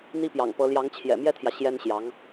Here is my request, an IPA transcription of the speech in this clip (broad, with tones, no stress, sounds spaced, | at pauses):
n̪ i˥ p j ɑ̰˨˩ ŋ p ɤ˧˥ l j ɑ˧˥ ŋ t͡ɕʰ j ɛ̰˨˩ m j ɛ˥ t̪ʰ j ä˨ ɕ j ɛ˥ n ɕ j ɑ˧˥ ŋ